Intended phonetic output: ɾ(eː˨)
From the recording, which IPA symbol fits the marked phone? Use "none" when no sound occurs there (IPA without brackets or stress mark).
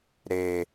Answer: eː˦